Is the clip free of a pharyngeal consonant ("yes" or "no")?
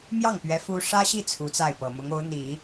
yes